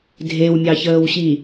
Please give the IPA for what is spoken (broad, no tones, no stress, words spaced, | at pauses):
dʱewmʲɑçəːwɕi